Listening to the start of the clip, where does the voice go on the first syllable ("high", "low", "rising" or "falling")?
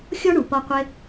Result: high